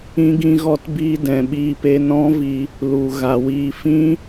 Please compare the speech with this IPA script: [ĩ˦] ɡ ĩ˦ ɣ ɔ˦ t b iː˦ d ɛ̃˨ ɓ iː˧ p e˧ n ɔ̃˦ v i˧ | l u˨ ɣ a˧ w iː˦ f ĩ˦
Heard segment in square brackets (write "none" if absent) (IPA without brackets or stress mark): ĩ˦